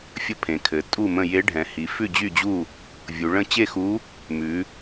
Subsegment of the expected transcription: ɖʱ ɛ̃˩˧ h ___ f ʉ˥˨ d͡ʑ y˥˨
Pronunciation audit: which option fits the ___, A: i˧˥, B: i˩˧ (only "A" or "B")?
B